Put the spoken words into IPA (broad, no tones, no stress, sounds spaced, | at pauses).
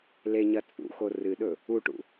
l e ɲ ɐ t͡sʼ ṵ x o r ɨ ɗ ɵ | u ʈ ṵ